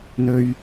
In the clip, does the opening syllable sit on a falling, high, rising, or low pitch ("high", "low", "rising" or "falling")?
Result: high